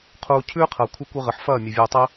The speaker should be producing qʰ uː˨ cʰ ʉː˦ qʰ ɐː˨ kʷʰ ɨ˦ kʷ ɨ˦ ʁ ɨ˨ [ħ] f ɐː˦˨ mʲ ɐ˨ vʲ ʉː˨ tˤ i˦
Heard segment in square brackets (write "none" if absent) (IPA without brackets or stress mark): ħ